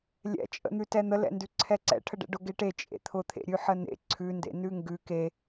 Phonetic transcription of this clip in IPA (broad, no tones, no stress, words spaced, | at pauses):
lʲɛ̰t͡ʃʼə̰n̪ʉ tɛn̪əlɛ̰ ndʉǀʰɛǀɛ̰ʈʰə ɖɛ̰ɖʊɡeʈe t͡ʃʼḛt̪ʰʊt̪ʰḛɾʲʉ ħənḛ ǀʰʉndḛ nʉŋɡʉ ke